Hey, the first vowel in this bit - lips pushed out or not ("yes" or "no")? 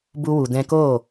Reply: yes